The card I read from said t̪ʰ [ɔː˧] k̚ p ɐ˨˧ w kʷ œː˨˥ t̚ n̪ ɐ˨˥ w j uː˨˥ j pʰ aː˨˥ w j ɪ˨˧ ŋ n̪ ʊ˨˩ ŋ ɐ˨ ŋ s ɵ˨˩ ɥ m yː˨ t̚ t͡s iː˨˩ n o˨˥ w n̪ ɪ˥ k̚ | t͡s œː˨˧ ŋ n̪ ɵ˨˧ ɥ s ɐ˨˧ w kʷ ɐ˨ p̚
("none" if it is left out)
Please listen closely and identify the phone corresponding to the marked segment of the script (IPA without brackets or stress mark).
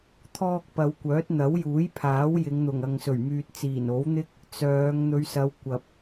ɔː˧